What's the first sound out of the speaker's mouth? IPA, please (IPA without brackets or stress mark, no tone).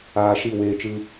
aː